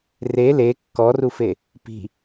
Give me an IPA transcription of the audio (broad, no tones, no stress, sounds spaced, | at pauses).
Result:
r e l e kː ɔ r u f e | p i̤